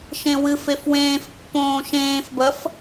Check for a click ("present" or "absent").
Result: absent